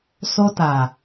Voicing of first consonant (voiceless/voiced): voiceless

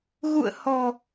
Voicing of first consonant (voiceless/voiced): voiced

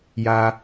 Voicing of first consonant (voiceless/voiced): voiced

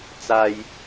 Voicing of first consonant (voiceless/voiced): voiceless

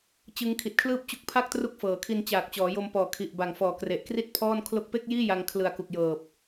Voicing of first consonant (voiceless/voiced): voiceless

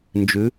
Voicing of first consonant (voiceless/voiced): voiced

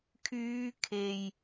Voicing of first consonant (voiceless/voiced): voiceless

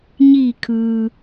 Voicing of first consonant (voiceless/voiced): voiced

